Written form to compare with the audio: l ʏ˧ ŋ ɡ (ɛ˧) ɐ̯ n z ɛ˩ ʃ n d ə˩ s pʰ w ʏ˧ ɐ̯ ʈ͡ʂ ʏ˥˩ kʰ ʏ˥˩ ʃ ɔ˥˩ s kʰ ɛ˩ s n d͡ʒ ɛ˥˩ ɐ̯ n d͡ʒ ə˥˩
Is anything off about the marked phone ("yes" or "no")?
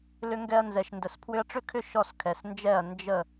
no